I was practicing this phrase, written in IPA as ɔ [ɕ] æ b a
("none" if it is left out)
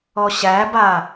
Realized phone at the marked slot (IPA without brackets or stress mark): ɕ